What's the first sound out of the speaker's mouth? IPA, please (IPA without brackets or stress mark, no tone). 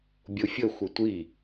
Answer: bʲ